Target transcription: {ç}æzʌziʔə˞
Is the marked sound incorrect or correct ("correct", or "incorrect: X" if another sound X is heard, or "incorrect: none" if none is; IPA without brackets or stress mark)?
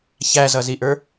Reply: correct